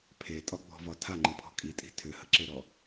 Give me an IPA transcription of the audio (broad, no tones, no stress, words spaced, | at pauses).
pʰetʼɒɡ͡bɔ̤vɒ tʰaŋ͡ǃɯpʰɔ̤ kʼitʼi̤ tʰʏhəǁeɾɔ